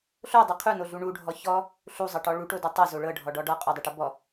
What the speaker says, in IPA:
ɬ o dˤ u qʰ u n o ɮ u ɳ u ɖʱ ɔ ç ɔ | ɬ u zˤ ɤ ʈ ɔ ɭ u ʈ o d ɔ tˤ ɤ z o ɭ ɤ ɖʱ ɔ ɖ ɔ ɖ ɔ qʼ ɔ dˤ ɤ ʈ ɤ b ɔ

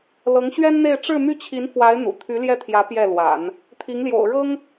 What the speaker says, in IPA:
l ɤ˧˥ ŋ ɕ ɥ ɛ˥ n n̪ e˥˧ ɪ̯ ʈ͡ʂ ɻ̩˥˧ m y˥˩ t͡ɕʰ i˧˥ n f w a˧˥ ɪ̯ n̪ ṵ˨˩ t̪ʰ y˧˥ l j ɛ˥˩ t̪ʰ j ä˧˥ p j ɛ˥˩ l w a̰˨˩˦ n | t̪ʰ i˧˥ ŋ l j o̰˨˩ ʊ̯ ɻ ɤ˥ ŋ

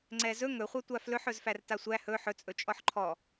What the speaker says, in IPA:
ŋ͡ǀ ɛ z ɵ ŋ ɵ χʷ a tʷ a f l ɵ ħ ɵ z f æ r t a sʷ æ h ɵ ħ ɵ t͡sʼ ɵ t͡ʃʼ ɔ ħ ǃʰ ɔ

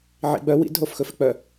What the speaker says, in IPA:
ʕ ḭ ɡ͡b œ w ḭ d ɦ o f x ɵ f ɛ k͡p œ

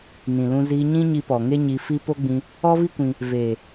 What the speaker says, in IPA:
n ĩ˨ l ũ˧ z iː˧ ɲ ĩ˦ ɲ i˧ p ɔ˨ ŋ e˦ ɲ i˧ f i˦ p o˦ ɡ͡b ĩ˧ | ɔ˦ v i˦ kʷ ĩ˧ | v eː˨

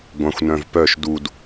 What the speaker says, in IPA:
ɡʷ ã xʷ n œ̃ v p œ ʃ d u d

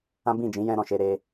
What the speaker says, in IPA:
ã˦ b ĩ˦˨ d͡ʒ ĩ˨˦ j ɛ̃˧ ɾ ɔ̃˨ ʃ e˧ ɾ e˧

